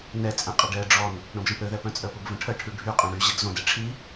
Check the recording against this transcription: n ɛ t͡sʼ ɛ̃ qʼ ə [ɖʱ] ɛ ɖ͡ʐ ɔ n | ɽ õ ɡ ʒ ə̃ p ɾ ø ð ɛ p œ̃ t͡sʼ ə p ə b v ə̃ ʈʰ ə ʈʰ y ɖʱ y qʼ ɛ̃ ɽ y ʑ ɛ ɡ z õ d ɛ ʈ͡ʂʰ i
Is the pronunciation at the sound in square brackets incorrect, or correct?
incorrect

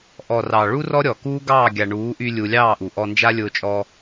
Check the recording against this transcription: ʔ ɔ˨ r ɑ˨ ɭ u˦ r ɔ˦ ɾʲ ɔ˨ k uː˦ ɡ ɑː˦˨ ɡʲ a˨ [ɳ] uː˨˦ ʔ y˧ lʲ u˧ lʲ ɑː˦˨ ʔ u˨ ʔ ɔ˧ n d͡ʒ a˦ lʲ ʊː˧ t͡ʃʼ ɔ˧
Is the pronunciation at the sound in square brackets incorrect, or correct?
correct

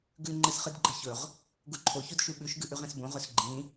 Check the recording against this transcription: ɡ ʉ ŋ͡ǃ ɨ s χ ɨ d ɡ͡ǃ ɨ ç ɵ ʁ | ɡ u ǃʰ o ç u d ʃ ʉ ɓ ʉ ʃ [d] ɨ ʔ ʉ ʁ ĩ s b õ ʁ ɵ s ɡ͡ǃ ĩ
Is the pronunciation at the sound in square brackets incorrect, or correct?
incorrect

